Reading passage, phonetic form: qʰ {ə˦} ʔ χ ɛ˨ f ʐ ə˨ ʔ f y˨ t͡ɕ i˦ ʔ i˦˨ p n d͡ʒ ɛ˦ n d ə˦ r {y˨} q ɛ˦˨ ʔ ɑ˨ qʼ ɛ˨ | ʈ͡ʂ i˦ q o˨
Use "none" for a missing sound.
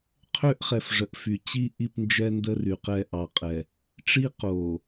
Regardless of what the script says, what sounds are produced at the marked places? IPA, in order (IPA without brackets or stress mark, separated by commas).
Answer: ø˦, y˨